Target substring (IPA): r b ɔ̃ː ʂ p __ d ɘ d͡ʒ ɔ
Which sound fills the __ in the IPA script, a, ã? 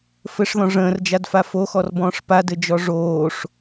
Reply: a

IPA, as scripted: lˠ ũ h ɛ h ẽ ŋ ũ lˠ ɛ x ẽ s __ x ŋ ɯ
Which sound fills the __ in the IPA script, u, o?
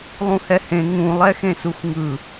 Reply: u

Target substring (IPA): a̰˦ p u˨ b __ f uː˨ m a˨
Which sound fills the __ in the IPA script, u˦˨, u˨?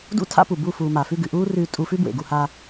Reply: u˦˨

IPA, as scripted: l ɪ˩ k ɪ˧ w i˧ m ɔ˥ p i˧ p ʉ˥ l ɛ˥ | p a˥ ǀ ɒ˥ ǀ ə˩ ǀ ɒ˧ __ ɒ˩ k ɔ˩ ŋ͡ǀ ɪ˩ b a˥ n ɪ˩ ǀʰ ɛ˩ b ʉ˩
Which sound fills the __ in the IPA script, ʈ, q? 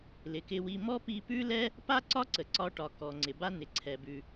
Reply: ʈ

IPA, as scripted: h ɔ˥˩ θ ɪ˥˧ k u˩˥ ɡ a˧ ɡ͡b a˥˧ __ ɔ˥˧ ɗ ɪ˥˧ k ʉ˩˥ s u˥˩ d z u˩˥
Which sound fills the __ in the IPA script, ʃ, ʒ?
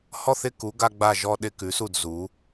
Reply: ʒ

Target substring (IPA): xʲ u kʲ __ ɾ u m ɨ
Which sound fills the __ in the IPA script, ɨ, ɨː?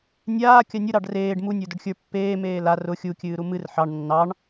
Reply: ɨː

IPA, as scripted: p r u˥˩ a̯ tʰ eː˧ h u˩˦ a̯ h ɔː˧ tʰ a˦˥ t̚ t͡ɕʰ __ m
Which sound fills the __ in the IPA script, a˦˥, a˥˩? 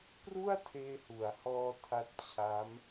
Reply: a˦˥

